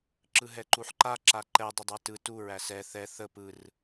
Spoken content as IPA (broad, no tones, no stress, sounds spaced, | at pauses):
ǁ ɯ ɦ ɛ ǃ u ħ ǃ a ǁ a ǃ ɛ dˤ ə dˤ a t ɯ t u ɹ æ s ɛ θ ɛ θ ə p ɯ r